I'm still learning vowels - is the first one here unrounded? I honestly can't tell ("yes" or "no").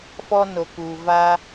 no